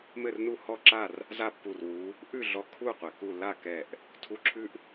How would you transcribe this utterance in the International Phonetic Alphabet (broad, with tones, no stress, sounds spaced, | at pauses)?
m ɘ˥˨ r n u˥˨ h ɔ˥˨ ǁ a˥˨ r | z a˥˨ pː u˧˩ r w u˨˦ | ʔ ʉ˥˨ ɮ ɔ˧˩ kʰ u˥˨ qʷ ɘ˩ k u˥˨ l a˥˨ k ɛ˧˩ ʔ | tʰ u˧˥˧ ǁʰ ʉ˥ ʔ